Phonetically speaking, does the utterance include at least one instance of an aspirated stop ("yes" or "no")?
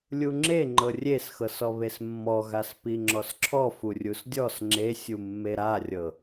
yes